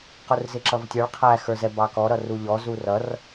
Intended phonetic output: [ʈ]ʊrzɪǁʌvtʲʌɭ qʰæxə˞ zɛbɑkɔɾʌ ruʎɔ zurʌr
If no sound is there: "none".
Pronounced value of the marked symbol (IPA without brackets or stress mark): q